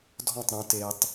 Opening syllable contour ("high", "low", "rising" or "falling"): falling